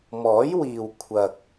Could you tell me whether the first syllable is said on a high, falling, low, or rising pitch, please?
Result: rising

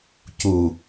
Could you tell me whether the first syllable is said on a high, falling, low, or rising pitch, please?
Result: low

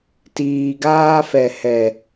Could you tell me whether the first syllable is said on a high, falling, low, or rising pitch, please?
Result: low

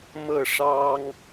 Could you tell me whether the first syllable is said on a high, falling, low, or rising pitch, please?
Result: falling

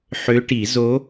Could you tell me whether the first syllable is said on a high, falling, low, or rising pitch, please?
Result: rising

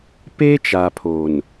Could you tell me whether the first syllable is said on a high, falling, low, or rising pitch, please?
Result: high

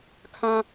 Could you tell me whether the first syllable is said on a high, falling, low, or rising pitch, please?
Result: high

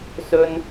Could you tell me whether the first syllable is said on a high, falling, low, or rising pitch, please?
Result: high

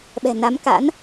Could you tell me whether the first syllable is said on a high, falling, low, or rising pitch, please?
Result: low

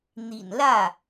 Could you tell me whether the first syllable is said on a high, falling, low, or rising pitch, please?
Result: low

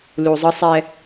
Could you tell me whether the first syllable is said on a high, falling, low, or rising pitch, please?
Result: low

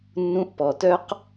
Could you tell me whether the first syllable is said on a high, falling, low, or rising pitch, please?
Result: rising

